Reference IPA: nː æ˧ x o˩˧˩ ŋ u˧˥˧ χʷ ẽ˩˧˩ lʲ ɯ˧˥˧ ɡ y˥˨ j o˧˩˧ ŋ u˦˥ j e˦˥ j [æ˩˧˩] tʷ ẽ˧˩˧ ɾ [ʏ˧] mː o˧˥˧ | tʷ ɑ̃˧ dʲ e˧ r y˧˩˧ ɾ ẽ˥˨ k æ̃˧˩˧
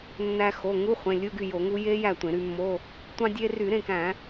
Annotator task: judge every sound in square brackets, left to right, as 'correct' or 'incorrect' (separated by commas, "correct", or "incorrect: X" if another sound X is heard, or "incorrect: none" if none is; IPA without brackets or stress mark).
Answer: incorrect: æ˥˨, incorrect: y˧